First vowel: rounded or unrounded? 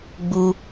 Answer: rounded